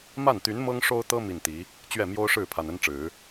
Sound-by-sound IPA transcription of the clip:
m a˥˩ n t̪ y˧˥ n m ɤ˥ ŋ ʂ o˥ ʊ̯ t̪ ɤ˥ m i˥˩ n t̪ i˧˥ | t͡ɕ ɥ ɛ˥˩ m j o˥ ʊ̯ ʂ ɻ̩˥˩ pʰ a˨˩ n ə˥ n ʈ͡ʂ ɻ̩˨˩˦

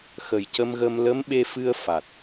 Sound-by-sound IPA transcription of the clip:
x ə˨˩ j c ə˧ m ɣ ə˧ m l ə˧˥ m ɓ e˧ f ɨ˧ ə̯ f a˨˩ t̚

